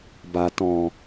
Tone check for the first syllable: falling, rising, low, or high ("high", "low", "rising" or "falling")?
low